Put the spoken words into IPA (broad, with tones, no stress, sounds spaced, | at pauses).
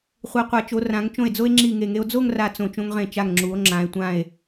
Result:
χʷ i˩˧ qʷ a˩˧ t͡ʃ o˩˧ r ã˩˧ ŋ t͡ʃ õ˧˩ e̯ d͡z o˧ e̯ ŋ͡ǁ i˧˩ ŋ e˧˩ ŋ e˧ o̯ d͡z o˥˧ ŋ r a˧˩ t͡s õ˧˩ t͡ʃ õ˧ ŋ ʁ ẽ˧˩ t͡ʃ a˧˩ ŋ ŋ͡ǁ u˩˧ o̯ ŋ͡ǁ ã˩˧ e̯ tʷ ã˧˩ e̯